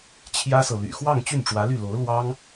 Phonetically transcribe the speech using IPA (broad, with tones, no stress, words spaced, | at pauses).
t͡ɕʰjä˥sɤ˨ ly̰˨˩xwɑ˥˧ŋ t͡ɕy˥˩nʈ͡ʂwä˧˥ly˥˩ lo˧˥ʊ̯ lwɑ˥ŋ